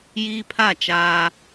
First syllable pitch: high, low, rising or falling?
high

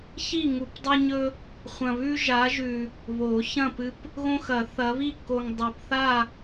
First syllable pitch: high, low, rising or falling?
falling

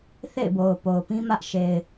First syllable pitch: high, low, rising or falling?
falling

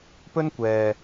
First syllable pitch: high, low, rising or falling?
high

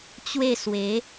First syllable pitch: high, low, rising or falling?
falling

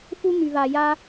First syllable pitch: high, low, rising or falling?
high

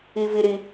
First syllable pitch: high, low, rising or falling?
high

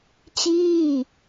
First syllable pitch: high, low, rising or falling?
falling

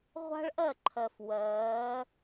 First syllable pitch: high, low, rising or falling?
high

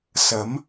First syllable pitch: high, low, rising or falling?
rising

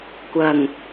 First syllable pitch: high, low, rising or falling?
low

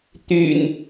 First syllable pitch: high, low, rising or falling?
low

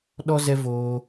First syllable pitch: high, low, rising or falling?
high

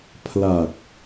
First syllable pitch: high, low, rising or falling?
low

